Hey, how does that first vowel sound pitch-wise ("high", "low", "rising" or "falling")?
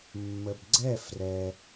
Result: low